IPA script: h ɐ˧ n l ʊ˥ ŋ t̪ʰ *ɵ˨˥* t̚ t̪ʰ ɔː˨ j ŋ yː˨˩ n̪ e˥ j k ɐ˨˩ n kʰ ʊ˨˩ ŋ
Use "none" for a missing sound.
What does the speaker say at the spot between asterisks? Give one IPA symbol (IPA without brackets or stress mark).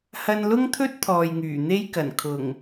ɵ˥